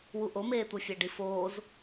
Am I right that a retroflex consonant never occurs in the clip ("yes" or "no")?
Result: no